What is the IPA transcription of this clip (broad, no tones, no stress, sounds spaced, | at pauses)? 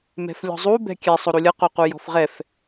m ɛ̤ f lʲ ɔ̤ zˤ u b ɛ̤ kʲ ɛ sˤ o ɾ u lʲ ʌ q o q u j ɔ̤ f ʁ ɛ f